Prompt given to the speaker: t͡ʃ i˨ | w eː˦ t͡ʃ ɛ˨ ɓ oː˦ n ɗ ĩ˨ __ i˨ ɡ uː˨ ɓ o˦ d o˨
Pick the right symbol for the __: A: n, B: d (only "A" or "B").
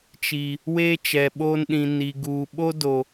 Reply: A